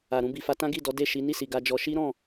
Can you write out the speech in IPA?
a˨ɾũ˧bi˨fa˧ tã˦ɡi˦˨ dɔ˨˦de˦˨ʃi˨˦ ni˦˨si˨ ɡa˧d͡ʒɔ˧ ʃi˦ɾɔ̃˦˨

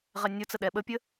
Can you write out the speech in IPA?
ʁɛnʲot͡sə ɗɛɓəpʲə

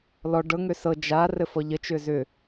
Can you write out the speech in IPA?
lɔ ɖɤ ŋøsɤ d͡ʒa rɘfɔʎə t͡ʃʏzʏ

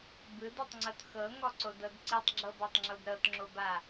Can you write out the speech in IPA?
bɯdotˤŋ͡ǀɤt xɤŋɔǀodɤd ǀitˤɡ͡ǁɤbatˤŋ͡ǁod ɾɤtŋ͡ǁoba

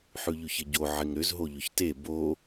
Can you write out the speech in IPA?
ħʉʎʉçɪɟo ʕɪŋɾʏz ɦoʎʏçte bo

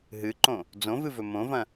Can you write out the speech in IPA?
ɦɨǃõ | d͡zõvɨvɵ mõvɐ̃

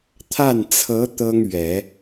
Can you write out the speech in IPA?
t̪ʰa˥˩nt͡sʰɤ˧˥ t̪ɤ˥ŋ ɥɛ˨˩˦

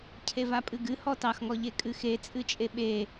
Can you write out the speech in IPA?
cʰevapʼɨɡɨ hɔtɑxŋɔʎe kʼɨxe t͡sʼɨt͡ʃʼeɓe

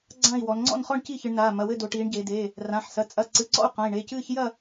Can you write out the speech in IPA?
ɡ͡ǀã˥˨i̯wɔ˩˧n ŋ͡ǀɔ̰˥˨nχɔ˥˨ɳ ci˥˨çɨ˩˧ɳnaː˩˧˩ mɐ˩˧˩wɘ˥˨do˩˧ʈiː˩˧ɳ ɟe˩˧deː˩˧˩ | rã˩˧˩ħsɐ˩˧˩ t͡sʼɐ˩˧˩ ǀɨ˩˧˩ǀɔ̰˥˨u̯ qã˩˧˩i̯ɳe˩˧˩ cɨː˥˨ç jɐ˥˨

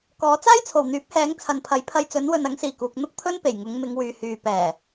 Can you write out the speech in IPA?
kɔː˨˥ t͡saː˥jt͡sʰo˨˩wn̪yː˨˥p̚hɛː˨˥ŋ t͡sʰɐ˨npʰɐ˨˥jpʰɐ˧jt͡sɵ˨˥n wɵ˨nɐ˨˥ŋsiː˨˩ kuː˨k̚ n̪ʊ˥k̚pʰɵ˥n pe˨˩jŋʊ˨˧ŋ mɪ˨˧ŋ wyː˨hyː˨ pɛː˨˩

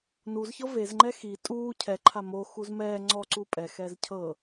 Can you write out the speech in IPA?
nuzçɤ vezŋ͡ǃɛ xi tʼuː cʰɛǃʰa mo xuzmɛː ŋ͡ǀɔǀu pʼɛxɛːz cʰɤ

